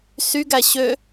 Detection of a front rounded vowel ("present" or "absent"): present